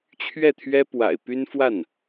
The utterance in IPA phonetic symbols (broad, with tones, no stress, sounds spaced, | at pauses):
t͡ɕʰ ɥ ɛ˥˩ t̪ʰ ɥ ɛ˥ p w a̰˨˩ ɪ̯ p y˥ n f w a˥˩ n